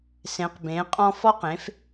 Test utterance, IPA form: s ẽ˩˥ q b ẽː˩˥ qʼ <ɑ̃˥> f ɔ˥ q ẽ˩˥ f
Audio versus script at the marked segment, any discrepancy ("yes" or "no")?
yes